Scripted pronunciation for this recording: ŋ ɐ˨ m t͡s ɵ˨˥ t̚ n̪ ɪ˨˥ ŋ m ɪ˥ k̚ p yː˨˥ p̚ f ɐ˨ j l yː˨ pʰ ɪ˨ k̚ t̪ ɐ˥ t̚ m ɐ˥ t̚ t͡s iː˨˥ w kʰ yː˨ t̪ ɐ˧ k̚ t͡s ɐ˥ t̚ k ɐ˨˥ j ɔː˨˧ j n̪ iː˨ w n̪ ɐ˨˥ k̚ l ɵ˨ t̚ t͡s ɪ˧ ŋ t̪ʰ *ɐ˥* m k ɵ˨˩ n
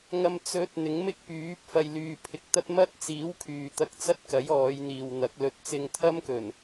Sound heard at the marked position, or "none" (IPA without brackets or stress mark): ɐ˥